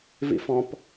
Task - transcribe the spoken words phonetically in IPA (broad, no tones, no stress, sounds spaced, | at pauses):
v ḭ f ɔ̃ p